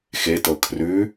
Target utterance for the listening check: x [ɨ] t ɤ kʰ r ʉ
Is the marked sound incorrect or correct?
incorrect